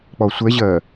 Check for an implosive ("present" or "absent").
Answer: absent